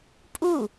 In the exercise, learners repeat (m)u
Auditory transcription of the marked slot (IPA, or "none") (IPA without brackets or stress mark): pʼ